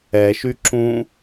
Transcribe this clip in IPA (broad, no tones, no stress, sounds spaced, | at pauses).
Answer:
ɛ ʃ y ǁ ũ